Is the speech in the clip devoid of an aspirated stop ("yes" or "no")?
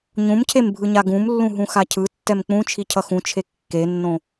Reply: no